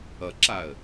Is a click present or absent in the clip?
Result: present